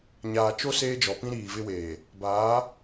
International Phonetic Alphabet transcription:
ɲ aː˨ t͡ʃ o˦ s eː˦ d͡ʒ ɔ˨ p ĩ˦ ɾ iː˨ v ɪ˦ w eː˨ | b aː˨˦

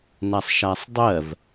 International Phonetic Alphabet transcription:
n a sˤ ʃ a sˤ dˤ ɜ v

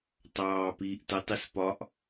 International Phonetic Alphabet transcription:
tˤ ɑː p iː ʔ t ɤ tˤ i s p ɒ ʔ

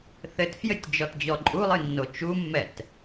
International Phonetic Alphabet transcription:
θ ɘ t f j ɘ tʲ d͡ʒ ɔ t d͡ʑ ɔ ǃʼ u lˠ ɨ nː o t͡ʃ u mː ɛ t

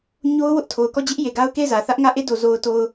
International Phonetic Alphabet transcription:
ɲ o˦ ʊ̯ w ʊ˦ ʔ tʰ o˨ ʊ̯ k ɔ˦˨ d͡ʑ ɪ˦ ʔ j e˨ ɡ a˦ ʊ̯ k e˦˨ ɪ̯ z ä˨ θ ä˦ ʔ ŋ ä˦˨ ʔ e˦˨ d o˨ z o˨ ʊ̯ t o˨ ʊ̯

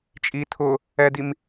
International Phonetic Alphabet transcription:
t͡ʃʼ i tʰ ʊ | ɛ d i m

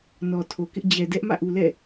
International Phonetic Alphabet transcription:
n ɔ˨ tʰ o˨ k ɪ˦ ʔ d͡ʑ ɛ˨ d ɛ˦ ʔ m ä̰˦˨ ʔ u˨ l ɛ̰˦˨

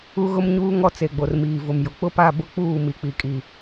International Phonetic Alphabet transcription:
u˦ ɣ ʊ˦ m ɲ uː˦ ŋ ɔ˦ t͡s e˨ ɡ͡b o˨ r m iː˨ v ʊ˨ m j ʊ˨ k͡p ʊ˦ p a˦˨ b ʊ˦ k͡p uː˦˨ m i˨ k͡p i˨ kʼ i˨

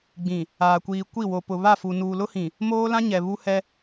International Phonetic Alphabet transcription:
ɡ͡b ĩ˨ | aː˨ kʷ iː˨ kʷ i˦˨ w o˨ p ʊ˨ β a˦˨ f u˨ n uː˨ l ʊ˦ h ĩ˨ | m oː˦ l ã˦ ɲ ɛ˨ β u˦ h ɛ˦

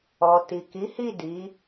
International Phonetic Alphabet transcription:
ɔ˨ t i˨ k i˨˦ h i˦˨ d i˨˦

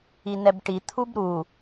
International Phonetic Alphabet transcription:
i n ɛ b ʈ i t̪ʰ u b ɾ u

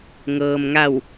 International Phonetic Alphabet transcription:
ŋ ɤː˩ m ŋ a˧˩ w

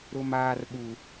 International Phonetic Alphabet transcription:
ɾ ʊ˨ m aː˨ r ɓ u˨

